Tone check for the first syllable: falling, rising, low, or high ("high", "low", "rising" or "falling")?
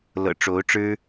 low